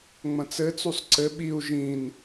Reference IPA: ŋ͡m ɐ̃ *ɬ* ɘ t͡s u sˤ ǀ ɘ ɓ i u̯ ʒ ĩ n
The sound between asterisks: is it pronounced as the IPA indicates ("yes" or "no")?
no